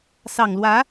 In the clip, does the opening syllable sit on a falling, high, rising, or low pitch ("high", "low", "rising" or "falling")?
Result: low